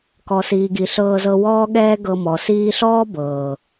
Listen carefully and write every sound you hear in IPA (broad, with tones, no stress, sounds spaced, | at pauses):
k ɔ˨ s iː˨ ɡ i˨ ɬ ɤː˧ z ɤ˧ w ɔː˦ ɠ ɛː˦ ɡ ɤ˧ m ɔ˨ s iː˦ ɬ ɔː˦ b ɤː˨